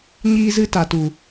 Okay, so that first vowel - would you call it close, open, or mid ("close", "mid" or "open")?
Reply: close